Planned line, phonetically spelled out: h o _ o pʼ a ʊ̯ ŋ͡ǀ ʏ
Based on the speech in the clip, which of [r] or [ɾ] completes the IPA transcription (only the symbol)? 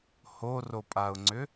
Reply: r